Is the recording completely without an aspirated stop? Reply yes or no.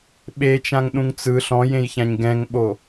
yes